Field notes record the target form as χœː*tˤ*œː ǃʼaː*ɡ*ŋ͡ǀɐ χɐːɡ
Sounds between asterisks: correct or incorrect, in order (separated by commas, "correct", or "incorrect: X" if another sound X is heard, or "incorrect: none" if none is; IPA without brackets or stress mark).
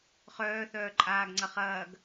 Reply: incorrect: θ, correct